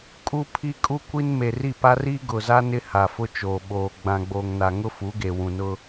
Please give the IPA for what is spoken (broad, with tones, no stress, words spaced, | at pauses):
kʼu˦pʰi˦ kʼu˦kʷi˦n me˨ri˦˨pa˦r i˦ɡʊ˨za˦ nɪ˦ha˨fʊ˦t͡ʃoː˨ ɓoː˨ ɡ͡bã˨ɡ͡boː˨ŋna˨ŋʊ˦ fu˨˦ɡe˨wũ˨nʊ˦